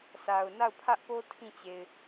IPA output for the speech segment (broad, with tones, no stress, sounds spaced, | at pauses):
s a˨ ʊ̯ n a˦˨ ʊ̯ pʰ ä˦ ʔ p o˦ tʰ ĩ˦˨ t͡ɕ e˨ ɪ̯